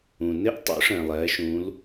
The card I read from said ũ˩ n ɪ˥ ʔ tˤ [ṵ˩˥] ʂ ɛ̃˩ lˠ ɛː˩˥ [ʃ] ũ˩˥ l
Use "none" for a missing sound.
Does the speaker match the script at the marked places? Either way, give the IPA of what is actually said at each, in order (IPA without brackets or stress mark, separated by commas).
ṵ˩˥, ʃ